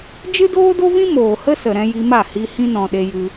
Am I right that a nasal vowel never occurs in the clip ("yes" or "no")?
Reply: no